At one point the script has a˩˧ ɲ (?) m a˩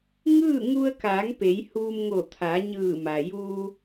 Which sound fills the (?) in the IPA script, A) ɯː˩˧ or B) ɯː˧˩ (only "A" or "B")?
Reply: B